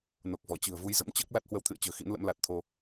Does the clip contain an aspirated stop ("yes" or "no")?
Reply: yes